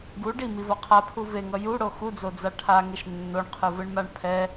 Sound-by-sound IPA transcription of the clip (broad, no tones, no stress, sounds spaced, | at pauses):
ɡ u ɖ i m i v ʌ qʰ a pʰ u v e ŋ ʌ j u ɽ o x u d͡z o d͡z a ʈʰ a ŋ e ʃ nː o ɳ qʰ ɯ v ɯ ɳ m a ɳ pʰ ɛ